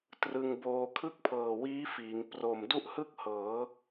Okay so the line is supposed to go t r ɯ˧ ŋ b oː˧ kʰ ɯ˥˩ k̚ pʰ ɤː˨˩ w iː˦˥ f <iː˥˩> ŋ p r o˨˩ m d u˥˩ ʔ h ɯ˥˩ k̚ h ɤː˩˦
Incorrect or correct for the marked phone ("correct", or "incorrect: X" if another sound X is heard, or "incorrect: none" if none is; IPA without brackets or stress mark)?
incorrect: iː˩˦